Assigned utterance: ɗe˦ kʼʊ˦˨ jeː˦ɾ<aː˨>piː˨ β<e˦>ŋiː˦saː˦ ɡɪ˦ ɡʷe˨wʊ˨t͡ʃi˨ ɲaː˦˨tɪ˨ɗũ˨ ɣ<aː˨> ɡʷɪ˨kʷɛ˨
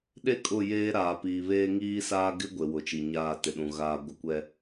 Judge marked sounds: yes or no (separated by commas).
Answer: yes, no, yes